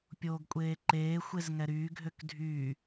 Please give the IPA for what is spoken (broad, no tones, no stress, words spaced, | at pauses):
pʲoːɡkʷʼeːǃeː xʷezŋɛɾyː ɡʱøkdʱyː